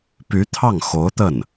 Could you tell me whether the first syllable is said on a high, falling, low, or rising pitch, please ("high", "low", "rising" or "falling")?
rising